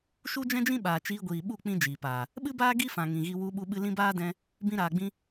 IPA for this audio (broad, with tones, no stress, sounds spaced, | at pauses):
ʃ u˦ d͡ʒ ɛ̃˦ d͡ʒ ĩ˦ ɓ aː˨ t͡ʃ iː˧ ɡʷ iː˨ ɓ u˦˨ k͡p ĩ˦ d͡ʒ iː˨ p aː˨ | ɓ ɨ˦ b aː˦ ɡ i˦ f ã˨ ŋ ĩ˨ ɣ i˧ w u˧ ɓ u˧ ɓ ɨ˧ l ĩ˦ b aː˦ d ɛ̃˧ | b ĩ˧ ɾ aː˨ ɡ͡b ĩ˧